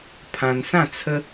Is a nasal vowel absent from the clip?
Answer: no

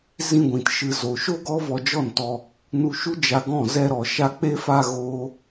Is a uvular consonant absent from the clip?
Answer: yes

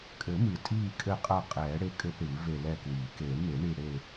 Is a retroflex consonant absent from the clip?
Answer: no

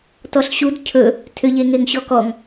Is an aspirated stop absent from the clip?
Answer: no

